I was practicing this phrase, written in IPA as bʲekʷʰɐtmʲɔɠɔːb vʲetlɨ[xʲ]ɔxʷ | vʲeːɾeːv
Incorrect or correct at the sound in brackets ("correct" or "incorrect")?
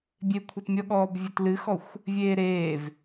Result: incorrect